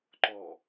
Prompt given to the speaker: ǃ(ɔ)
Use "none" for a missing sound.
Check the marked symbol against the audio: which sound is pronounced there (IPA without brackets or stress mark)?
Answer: ɔ